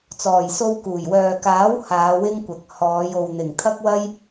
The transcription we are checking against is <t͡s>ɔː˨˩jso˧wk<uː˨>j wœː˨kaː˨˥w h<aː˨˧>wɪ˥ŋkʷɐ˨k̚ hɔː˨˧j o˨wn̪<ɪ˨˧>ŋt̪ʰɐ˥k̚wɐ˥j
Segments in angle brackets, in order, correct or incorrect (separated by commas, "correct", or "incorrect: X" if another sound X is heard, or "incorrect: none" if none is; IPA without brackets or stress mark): correct, incorrect: uː˨˩, correct, incorrect: ɪ˨˩